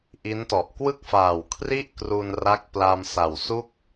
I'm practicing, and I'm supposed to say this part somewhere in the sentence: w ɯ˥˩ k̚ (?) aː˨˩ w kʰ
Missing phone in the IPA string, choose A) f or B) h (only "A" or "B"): A